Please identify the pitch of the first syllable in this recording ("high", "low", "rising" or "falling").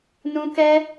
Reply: high